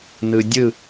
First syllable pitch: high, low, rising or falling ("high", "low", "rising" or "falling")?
low